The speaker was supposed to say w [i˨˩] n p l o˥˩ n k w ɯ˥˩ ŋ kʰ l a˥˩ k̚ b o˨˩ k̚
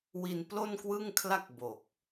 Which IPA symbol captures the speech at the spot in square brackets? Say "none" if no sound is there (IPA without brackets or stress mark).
i˧